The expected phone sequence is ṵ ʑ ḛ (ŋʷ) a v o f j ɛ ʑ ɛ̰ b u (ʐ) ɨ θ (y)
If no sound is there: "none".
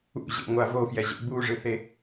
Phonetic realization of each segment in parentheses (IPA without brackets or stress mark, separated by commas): ŋʷ, ʐ, e